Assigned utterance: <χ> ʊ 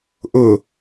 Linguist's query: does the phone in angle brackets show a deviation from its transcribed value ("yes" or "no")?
yes